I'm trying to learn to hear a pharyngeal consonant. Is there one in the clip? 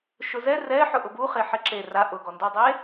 yes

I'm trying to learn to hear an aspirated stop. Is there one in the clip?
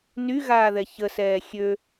no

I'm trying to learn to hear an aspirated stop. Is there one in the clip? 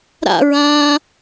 no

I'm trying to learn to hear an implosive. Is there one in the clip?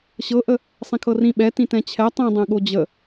yes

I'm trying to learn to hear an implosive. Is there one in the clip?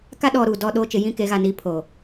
yes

